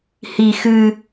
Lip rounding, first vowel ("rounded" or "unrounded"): unrounded